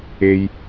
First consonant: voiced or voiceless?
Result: voiced